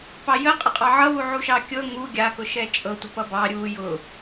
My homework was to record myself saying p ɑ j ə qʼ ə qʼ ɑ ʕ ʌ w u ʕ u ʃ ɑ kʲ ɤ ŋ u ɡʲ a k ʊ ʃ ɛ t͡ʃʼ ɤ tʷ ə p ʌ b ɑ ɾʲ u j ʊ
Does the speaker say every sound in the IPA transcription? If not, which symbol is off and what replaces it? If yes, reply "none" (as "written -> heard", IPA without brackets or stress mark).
none